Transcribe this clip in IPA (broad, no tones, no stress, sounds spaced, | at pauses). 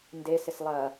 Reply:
n d e s ɪ s lˠ ɐ